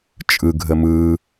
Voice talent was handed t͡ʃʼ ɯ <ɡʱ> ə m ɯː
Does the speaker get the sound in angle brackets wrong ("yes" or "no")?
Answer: no